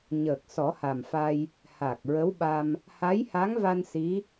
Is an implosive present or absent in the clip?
present